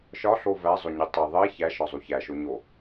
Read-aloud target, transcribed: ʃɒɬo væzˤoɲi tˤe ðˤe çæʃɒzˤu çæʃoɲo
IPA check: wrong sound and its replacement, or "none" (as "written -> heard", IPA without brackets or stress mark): none